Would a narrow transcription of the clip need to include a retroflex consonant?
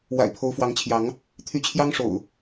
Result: yes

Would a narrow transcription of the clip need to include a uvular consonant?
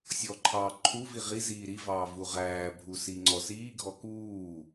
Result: yes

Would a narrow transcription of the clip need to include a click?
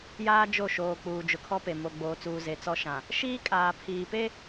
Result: no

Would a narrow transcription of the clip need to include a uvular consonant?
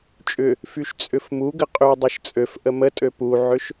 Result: yes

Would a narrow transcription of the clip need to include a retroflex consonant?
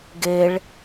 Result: yes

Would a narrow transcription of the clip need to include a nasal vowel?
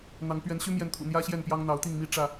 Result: no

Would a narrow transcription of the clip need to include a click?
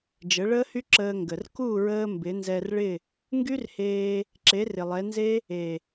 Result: yes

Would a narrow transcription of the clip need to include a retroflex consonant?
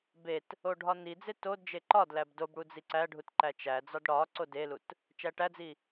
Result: yes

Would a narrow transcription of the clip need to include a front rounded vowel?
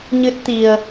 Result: no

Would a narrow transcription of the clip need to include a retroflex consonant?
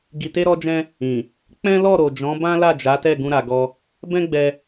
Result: no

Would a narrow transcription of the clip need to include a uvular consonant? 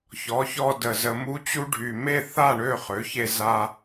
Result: yes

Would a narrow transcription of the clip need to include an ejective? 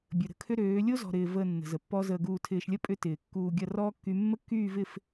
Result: yes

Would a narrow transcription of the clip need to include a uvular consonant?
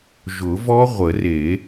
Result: yes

